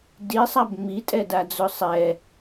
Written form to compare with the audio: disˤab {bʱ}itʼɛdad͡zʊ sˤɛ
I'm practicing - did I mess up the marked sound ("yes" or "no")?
yes